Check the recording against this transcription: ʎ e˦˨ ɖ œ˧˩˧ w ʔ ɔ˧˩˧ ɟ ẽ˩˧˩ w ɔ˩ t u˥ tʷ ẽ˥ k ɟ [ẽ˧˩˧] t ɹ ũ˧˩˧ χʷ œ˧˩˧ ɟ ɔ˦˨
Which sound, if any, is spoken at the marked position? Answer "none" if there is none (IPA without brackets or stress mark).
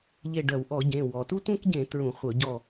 ẽ˧˩˧